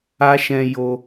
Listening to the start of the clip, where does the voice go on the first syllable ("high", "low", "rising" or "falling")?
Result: high